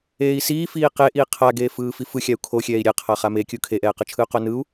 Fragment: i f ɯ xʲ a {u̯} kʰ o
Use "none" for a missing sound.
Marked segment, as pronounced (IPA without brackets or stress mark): u̯